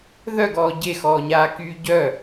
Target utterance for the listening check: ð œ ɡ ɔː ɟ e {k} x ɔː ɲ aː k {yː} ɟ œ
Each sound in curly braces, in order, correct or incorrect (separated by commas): incorrect, correct